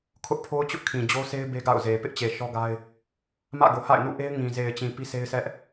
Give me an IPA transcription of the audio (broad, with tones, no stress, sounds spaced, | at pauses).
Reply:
kʰ ʊ˦ ʔ pʰ o˦ ʊ̯ t͡ɕ ʊ˦ ʔ kʰ ĩ˨ d͡ʑ o˦ sʰ e˦ ɪ̯ b e˦ ɡ a̰˦˨ ʊ̯ z e˨ p ɪ˦ ʔ t͡ɕ e˨ ʃ ɔ˦ ɡ a˦ ɪ̯ | m ä̰˦˨ ɡ o˨ h a̰˦˨ ɪ̯ n ṵ˦˨ ʔ e˦ ɪ̯ ŋ ĩ˨ z e˨ ɪ̯ t͡ɕ ĩ˨ p i˦ s e˦ ɪ̯ s ɛ˦ ʔ